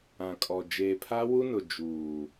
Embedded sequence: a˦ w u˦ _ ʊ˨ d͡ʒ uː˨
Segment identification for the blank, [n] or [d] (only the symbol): n